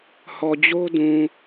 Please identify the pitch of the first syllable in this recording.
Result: low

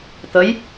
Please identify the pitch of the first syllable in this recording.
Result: rising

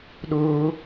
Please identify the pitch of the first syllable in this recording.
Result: high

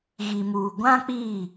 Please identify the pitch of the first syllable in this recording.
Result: low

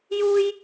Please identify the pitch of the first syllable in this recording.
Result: high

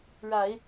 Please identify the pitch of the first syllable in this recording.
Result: low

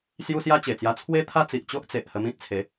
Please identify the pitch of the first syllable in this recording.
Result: high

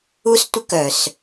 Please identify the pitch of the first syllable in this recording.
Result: high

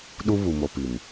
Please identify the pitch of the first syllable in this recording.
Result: high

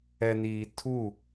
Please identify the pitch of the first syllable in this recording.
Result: low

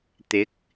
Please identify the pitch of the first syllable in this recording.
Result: rising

